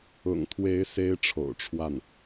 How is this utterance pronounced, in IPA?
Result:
ʊ̰˨˩ ŋ t̪ʰ w e˧˥ ɪ̯ s e˥ ɪ̯ ʈ͡ʂʰ o̰˨˩ ʊ̯ ʈ͡ʂʰ w a˥˩ n

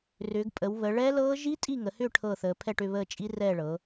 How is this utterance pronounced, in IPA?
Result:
r ʏː˩˧ ɡ pʼ ə˩˧ w β ə˩˧ ɭ ɛ˦˥ l ɤː˦˥ ʒ i˦˥ tʼ i˦˨ ŋ ə˩˧ h ʏ˦˨ ʈʰ ɤ˦˨ θ əː˩˧ pʰ ɛ˦˨ ʈ ʏ˦˨ β əː˦˨ t͡ʃʼ i˦˥ r ɛː˦˨ ɭ ɤ˩˧

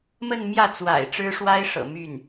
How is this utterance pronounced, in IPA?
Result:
m ə˥˧ n m j ä˥˩ t͡s w a̰˨˩ ɪ̯ ʈ͡ʂ ɻ̩˥ ʂ w a˥ ɪ̯ ʂ ɤ̰˨˩ m y˥˩ n

